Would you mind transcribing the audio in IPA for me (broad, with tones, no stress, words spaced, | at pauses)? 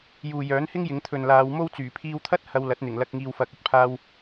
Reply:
juː˨jœː˨˥nhɪ˥ŋ jɪ˨˧ŋt̪ʰɵ˨nlaː˨˧w mo˥wt͡syː˨˩ pʰiː˧wt̪ʰɐ˥t̚ hɐ˧wlɐ˨˥t̚n̪ɪ˨˩ŋlɐ˧k̚ ŋiː˨wfɐ˨k̚ ɵ˨t̚pʰaː˧w